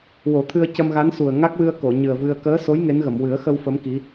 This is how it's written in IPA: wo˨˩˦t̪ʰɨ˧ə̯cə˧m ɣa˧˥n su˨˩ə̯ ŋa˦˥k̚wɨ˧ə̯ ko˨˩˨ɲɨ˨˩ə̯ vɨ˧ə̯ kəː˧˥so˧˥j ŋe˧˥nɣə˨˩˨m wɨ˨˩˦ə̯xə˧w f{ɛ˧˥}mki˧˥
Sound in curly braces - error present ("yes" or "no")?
yes